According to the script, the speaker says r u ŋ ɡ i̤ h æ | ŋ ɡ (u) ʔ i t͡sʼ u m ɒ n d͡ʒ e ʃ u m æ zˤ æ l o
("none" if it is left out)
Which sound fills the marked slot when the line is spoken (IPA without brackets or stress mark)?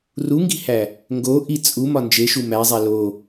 o